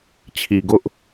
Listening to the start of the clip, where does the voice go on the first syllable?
low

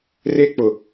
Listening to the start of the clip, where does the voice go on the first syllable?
high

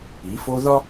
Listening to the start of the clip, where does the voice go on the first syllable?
rising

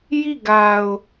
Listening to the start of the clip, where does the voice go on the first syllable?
falling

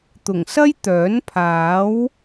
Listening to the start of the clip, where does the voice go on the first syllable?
low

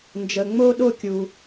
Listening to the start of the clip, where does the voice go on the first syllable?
low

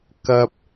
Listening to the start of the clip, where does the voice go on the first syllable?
low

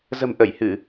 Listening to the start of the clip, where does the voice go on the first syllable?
low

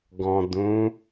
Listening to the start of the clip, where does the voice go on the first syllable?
low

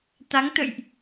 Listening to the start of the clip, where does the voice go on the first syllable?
rising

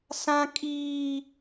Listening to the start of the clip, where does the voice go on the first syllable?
high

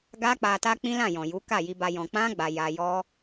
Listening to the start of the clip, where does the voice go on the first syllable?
high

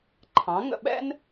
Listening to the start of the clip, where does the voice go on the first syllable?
rising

